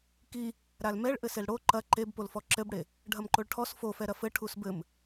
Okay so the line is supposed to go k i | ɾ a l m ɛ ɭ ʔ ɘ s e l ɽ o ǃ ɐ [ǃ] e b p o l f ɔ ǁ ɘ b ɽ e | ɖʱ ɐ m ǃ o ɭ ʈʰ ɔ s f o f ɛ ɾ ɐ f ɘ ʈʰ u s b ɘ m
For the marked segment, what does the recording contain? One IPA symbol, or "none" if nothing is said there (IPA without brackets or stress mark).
ǃ